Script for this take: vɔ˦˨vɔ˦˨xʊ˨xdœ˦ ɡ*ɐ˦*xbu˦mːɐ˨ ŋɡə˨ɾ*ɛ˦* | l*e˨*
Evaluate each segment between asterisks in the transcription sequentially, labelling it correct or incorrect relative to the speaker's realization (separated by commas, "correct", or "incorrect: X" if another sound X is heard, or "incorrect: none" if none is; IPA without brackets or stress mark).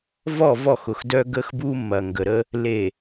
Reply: incorrect: ə˦, incorrect: ə˦, correct